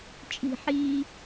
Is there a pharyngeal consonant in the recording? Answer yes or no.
yes